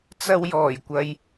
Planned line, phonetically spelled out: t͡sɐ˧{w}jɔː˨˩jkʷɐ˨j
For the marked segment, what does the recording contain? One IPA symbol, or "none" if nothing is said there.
w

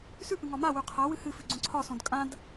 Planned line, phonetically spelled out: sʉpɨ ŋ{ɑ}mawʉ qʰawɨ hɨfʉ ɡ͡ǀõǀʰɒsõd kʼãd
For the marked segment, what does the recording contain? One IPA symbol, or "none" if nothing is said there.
ɒ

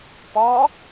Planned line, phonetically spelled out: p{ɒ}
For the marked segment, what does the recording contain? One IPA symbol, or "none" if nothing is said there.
ɒ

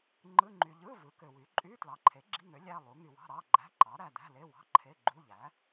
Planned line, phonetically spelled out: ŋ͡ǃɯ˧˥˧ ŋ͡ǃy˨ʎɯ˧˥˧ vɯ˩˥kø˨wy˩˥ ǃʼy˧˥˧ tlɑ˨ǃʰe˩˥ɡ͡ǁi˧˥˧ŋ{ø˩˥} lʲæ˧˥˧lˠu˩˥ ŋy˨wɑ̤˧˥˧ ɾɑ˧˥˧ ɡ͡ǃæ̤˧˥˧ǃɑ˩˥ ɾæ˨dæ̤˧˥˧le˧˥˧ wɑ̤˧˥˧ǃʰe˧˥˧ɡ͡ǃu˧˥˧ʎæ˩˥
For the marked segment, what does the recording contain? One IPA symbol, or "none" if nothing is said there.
ø˩˥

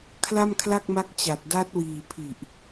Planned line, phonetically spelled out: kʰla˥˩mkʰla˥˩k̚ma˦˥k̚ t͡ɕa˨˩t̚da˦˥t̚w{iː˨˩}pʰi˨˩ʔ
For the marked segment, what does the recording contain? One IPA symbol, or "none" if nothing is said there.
iː˨˩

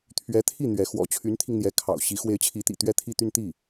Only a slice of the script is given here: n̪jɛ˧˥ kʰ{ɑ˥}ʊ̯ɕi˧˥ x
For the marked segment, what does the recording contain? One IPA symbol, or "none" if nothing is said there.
ɑ̰˨˩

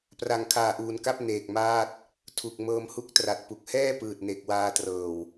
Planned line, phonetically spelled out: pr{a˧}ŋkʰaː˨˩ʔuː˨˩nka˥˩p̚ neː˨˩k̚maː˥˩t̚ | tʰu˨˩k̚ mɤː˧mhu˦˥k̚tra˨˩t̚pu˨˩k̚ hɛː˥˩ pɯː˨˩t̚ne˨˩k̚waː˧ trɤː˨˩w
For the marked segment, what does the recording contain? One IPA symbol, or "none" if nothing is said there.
a˨˩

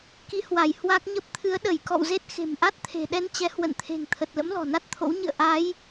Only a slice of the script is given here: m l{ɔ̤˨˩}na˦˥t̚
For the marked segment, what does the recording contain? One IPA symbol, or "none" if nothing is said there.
ɔ̤˨˩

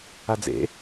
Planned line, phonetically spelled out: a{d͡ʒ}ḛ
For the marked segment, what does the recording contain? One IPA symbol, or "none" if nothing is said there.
d͡z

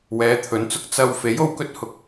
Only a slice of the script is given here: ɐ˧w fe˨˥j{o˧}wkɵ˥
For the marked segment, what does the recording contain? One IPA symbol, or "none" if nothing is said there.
o˨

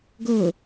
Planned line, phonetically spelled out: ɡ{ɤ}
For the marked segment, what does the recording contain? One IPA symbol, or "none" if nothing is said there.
o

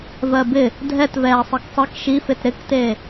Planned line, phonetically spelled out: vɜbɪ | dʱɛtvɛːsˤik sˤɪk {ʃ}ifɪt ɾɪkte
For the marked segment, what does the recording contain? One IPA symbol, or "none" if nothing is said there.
ʃ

